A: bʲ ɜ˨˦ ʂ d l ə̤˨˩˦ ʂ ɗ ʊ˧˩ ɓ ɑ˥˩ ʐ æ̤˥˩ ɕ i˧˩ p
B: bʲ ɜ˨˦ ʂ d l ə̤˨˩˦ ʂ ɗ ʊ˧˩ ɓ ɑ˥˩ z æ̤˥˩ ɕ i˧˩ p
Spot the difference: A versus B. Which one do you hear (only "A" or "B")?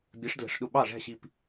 A